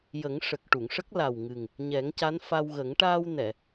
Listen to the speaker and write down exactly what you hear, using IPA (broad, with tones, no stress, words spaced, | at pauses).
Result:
jə˨˩˦ŋʂə˨˩k̚ ʈu˨˩˨ŋʂə˦˥k̚la˨˩w ŋɨ˨˩ŋ | ɲɛ˨˩˦ŋca˧˥nfa˧wɣə˨˩˦ŋ ʈaː˧wnɛ˨˩˨